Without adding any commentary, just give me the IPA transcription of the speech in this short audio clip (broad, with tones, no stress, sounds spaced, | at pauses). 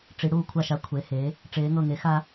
ʈ͡ʂ i˩˧ ɽ uː˧˩ kʷʰ a˧˩ ʃ a˩˥ kʷʰ e˩˧ h e˩˧ | ʈ͡ʂ eː˩˧ ŋ ɤ˧˩ ŋ e˩˥ x a˦